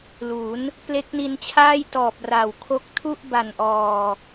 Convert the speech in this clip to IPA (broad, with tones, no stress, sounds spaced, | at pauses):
l u˩˦ n | p l e˦˥ k̚ n i˧ n t͡ɕʰ aː˥˩ j t ɔː˨˩ p̚ r a˨˩ w kʰ o˦˥ k̚ tʰ u˥˩ ʔ b a˨˩ n ʔ ɔː˨˩